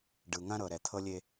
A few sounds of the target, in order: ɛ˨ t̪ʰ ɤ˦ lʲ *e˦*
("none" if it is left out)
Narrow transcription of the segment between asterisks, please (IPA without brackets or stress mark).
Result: e˦